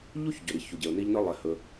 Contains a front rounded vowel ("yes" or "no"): no